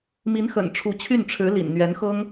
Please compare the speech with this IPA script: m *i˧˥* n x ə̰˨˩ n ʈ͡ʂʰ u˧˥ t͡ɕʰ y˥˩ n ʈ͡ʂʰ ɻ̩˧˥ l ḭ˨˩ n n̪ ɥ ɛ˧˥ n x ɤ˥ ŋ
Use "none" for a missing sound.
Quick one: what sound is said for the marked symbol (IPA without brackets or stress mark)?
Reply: i˧˥